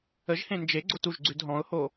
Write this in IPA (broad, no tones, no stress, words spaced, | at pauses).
əʒhẽ nd͡ʒeɡ͡ǀot uʒɡ͡ǀʉd ɦɔ̃ʊ̯ho